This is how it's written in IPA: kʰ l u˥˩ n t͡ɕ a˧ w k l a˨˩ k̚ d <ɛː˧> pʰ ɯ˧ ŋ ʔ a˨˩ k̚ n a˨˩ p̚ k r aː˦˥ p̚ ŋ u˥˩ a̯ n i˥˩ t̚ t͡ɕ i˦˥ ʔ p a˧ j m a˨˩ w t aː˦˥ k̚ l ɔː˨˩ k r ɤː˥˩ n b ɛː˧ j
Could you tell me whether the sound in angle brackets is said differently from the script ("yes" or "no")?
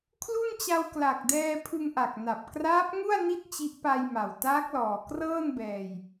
no